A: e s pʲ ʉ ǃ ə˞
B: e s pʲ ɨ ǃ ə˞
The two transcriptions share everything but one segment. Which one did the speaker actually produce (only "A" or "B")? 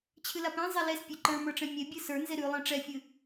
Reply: B